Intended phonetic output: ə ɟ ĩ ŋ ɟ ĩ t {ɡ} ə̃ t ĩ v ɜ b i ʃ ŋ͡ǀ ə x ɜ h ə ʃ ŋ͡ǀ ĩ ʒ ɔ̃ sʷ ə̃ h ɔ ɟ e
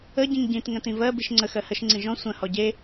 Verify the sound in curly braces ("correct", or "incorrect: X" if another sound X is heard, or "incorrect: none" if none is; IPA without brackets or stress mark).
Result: incorrect: ŋ